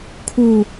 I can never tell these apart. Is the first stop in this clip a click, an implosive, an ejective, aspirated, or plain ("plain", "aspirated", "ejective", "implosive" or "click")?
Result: aspirated